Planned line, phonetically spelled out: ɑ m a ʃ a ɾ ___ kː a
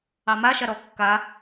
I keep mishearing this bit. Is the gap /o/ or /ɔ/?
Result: ɔ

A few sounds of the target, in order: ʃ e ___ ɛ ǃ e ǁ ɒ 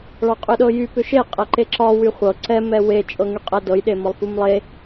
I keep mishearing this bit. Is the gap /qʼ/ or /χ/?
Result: qʼ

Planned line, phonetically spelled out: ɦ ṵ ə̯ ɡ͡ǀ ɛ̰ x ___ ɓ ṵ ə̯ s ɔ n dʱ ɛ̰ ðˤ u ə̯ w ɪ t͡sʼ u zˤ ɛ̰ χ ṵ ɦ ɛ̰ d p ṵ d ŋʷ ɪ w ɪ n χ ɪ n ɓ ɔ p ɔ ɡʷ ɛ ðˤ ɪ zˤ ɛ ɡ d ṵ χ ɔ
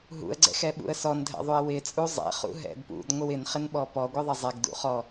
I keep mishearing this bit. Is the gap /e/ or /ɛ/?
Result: ɛ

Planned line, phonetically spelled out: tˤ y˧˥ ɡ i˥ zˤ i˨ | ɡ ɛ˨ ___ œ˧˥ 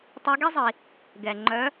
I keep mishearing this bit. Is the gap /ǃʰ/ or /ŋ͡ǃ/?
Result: ŋ͡ǃ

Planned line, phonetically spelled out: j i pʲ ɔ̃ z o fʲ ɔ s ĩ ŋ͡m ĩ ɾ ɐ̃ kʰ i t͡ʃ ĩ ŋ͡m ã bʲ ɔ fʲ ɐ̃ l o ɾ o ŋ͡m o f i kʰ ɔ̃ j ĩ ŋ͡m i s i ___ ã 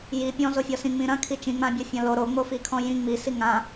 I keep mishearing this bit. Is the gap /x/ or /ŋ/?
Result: ŋ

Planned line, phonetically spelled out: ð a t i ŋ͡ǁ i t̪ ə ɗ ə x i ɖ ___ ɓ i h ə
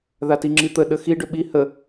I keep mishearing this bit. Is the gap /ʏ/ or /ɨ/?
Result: ʏ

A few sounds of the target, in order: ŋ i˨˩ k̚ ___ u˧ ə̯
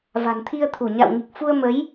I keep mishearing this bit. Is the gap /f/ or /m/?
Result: f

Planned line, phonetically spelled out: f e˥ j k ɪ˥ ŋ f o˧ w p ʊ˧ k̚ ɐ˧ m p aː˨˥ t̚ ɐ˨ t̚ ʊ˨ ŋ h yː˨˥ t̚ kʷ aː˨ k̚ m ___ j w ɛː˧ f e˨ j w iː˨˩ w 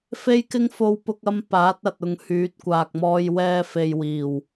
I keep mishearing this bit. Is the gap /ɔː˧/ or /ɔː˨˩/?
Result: ɔː˧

